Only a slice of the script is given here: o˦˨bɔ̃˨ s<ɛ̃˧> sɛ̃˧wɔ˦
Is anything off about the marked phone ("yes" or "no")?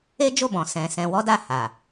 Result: yes